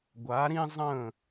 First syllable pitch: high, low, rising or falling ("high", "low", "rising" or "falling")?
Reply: rising